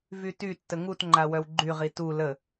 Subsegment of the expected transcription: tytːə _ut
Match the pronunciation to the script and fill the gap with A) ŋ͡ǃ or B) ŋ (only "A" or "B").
B